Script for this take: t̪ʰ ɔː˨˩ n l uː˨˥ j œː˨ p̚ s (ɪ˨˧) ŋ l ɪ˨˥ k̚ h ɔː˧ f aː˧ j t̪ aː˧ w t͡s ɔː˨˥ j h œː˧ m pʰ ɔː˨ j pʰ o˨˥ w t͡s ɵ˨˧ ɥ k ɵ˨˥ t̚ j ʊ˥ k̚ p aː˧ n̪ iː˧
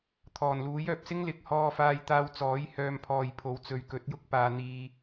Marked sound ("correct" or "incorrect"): incorrect